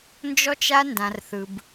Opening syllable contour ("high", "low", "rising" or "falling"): high